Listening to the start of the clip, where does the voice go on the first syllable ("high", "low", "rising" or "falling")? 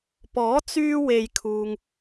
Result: rising